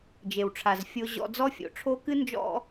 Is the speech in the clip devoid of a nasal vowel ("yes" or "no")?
yes